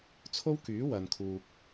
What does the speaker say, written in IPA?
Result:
t͡sʰ o˥ w k yː˨˥ w ɐ˨ n kʰ uː˨ k̚

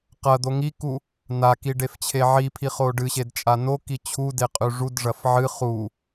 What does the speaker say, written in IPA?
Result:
q ɐ d̪ o ŋ i k u | n a k i ɖ e f t͡ɕʰ e ʕ i pʰ i χ o ɖ ɨ ɕ e d t͡ʃʼ a n o k i t͡ɕʰ u d e qʼ ʉ ʐ u d ʐ ɐ f ʕ ɨ χ u

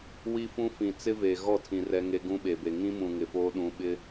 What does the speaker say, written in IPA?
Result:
w i˦ f ũ˦ f ĩ˨ t͡s ɪ˦ v e˨ ɣ ɔ˦˨ tʰ ĩ˨ r ɛ˦ ŋ e˦ ɡ ũ˦ ɓ e˨ b e˨ ŋ ĩ˦ m ũ˨ ŋ ɪ˨ f oː˦ ɗ ũ˦ ɓ ɪ˦

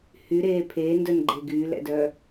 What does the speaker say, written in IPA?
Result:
h y ɾ eː pʰ eː n d œ n ɡ͡ǃ e ɡ yː l ɛ̰ d œ

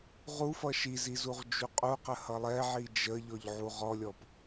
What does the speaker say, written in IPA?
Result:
ʁ u f ʌ ʃ i z i z u ʁ d͡ʒ u qʼ u q ə h ʌ lˠ ɛ ʕ i d͡ʒ ə ʎ ɔ ʎ ʕ u ʁ ɔ lʲ ɔ p

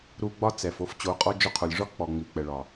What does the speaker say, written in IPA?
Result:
ɾ u˧ ɡ͡b ɒ˦ t͡s ɛ˨ f o˦ f t͡ɕ o˨˦ qʼ ɔ˦ d͡ʒ o˧ qʰ o˨ lʲ ʐ ɒ˦ k͡p ɔ˨ ŋ͡m i˨ k͡p ɛ˨ ɭ ɒ˨

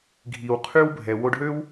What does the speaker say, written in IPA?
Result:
ɡʱ i˩ w qʰ y˧ w bʱ ɛ˩ w o˧ ɖ ɦ ø˥ w

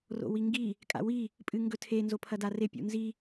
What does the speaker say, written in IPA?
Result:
r o̰ w i ŋ ɡ i | kʼ a̰ w i | pʼ ɨ ŋ ɡ ɵ tʰ e n z o pʰ ɐ d a r e pʲ ṵ n z i

